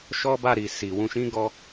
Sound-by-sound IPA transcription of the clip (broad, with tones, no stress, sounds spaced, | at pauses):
ʃ ɔ˦ b a˦˨ ɾ i˨ s i˨ w ũ˧ ʃ ĩ˦ ɡ ɔ˦